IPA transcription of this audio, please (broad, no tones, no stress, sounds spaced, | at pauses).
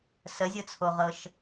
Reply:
s ə zʲ ɤ t͡sʰ o ʁ ɤ ʃ